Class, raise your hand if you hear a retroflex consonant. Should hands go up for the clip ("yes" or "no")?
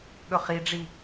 yes